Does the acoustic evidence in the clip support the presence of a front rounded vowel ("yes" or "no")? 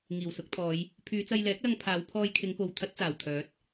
yes